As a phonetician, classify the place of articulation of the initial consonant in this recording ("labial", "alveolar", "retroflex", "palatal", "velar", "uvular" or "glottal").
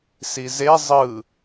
alveolar